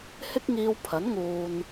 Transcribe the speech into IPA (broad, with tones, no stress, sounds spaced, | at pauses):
h ɪ˥ k̚ ŋ iː˧ w pʰ ɐ˨˥ n ŋ uː˨ n